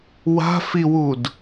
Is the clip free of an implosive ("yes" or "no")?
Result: yes